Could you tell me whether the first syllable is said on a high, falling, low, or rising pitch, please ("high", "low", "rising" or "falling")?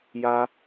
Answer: high